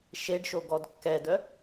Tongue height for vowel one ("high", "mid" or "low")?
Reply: mid